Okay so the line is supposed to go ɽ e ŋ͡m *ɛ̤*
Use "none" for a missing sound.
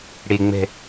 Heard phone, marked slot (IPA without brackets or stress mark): ɛ̤